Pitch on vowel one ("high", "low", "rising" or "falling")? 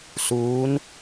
rising